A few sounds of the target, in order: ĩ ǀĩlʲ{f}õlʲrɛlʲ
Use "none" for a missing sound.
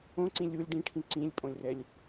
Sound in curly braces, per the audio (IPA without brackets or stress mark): pʼ